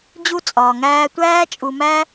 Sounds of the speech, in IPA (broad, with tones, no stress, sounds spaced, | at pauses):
d͡ʑ u˧ t͡sʼ ɒː˨ ŋ æː˧ tʷ æː˦ t͡ʃʼ u˧ m æ˦